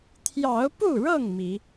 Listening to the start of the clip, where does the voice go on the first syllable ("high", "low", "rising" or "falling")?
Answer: rising